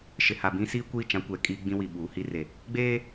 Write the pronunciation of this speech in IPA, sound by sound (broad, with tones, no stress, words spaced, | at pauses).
ʃɪ˨ha˨bĩ˦siː˦ kʷi˦˨t͡ʃã˦kʷɛ˨kʼiː˦ ɡ͡bĩ˦wi˨ ɓuː˨˦hi˦re˨ | ɡ͡beː˦